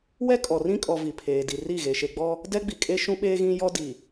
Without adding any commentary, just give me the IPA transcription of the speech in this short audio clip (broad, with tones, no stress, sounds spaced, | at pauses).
w ɛ˦ kʼ ɔ˨ r ĩ˦ kʼ ɔ˨ v i˨ pʰ eː˨ d i˨ r i˦˨ ɣ e˨ ʃ e˨ ɡ͡b ɔ˦ | d ɛ˦ ɡ͡b i˨ kʼ e˦ ʃ ũ˦ ɓ eː˦ ɣ ĩ˦ j ɔ˦ d i˨